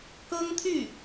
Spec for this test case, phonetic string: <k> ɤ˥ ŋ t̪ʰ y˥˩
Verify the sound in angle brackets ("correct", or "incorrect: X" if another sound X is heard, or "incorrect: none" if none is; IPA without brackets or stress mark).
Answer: correct